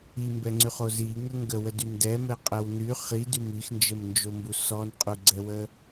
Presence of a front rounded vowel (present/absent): present